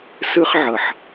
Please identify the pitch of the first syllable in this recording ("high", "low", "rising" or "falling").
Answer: high